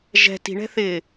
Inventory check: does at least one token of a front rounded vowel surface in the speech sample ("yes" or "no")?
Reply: no